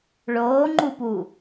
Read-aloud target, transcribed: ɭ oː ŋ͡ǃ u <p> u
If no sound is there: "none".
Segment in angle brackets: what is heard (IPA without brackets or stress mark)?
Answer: p